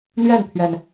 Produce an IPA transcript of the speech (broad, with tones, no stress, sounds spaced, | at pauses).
n̪ ɥ ɛ˥˩ n t̪ʰ ɥ ɛ˩ n